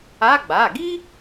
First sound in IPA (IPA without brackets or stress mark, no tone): a